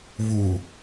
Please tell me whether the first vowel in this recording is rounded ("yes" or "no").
yes